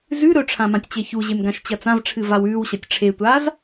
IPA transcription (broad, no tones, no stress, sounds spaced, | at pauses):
z ʉ ɾ ɵ ʈ͡ʂʰ ã m ã tʲ t͡ɕ e ç u ʑ e m ɡ ã ʃ t͡ɕ ɐ t͡s ã v ʈ͡ʂʰ ɨ v a w ʉː w ɕ ɐ tʲ ʈ͡ʂʰ e tʷ aː z